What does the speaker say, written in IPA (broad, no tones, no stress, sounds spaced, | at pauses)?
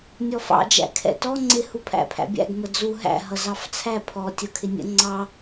nʲ ɔ f ɑ̰ d͡ʒ æ̰ kʰ ɛ̰ t ɔ ŋ͡ǀ ɪ h u pʰ æ̰ pʰ æ̰ bʲ æ̰ ɡ m ə d͡z u ɦ æ̰ ɦ ʌ z ɑ f t͡sʰ æ pʰ ɔ tʲ ʌ kʰ ɪ nʲ ə̰ ŋ͡ǀ ɑ